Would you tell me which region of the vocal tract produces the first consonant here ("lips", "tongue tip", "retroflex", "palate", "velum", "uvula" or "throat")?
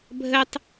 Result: lips